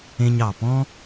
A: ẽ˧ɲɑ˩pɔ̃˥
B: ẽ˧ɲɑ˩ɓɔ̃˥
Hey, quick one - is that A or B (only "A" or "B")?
A